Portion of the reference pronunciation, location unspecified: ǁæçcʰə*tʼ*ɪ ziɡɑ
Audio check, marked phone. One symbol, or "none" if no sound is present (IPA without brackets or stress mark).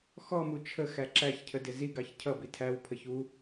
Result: d